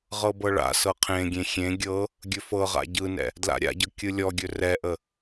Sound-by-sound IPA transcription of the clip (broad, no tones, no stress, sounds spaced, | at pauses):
ʁ ɤ b ɤ ɭ a̰ s ɤ qʰ ẽ ɡʲ ẽ xʲ ẽ ɡʲ ɤ | ɡʲ ɵ f ɤ ʁ a̰ ɟ ɯ n ɛ̰ | d l a̰ ɾʲ a̰ ɟ ɤ kʲ ɯ lʲ ɔ ɡʲ ɵ r ɛ ʔ ə